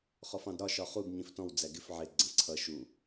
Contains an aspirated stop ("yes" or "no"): yes